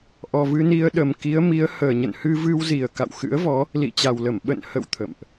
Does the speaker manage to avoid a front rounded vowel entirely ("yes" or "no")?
yes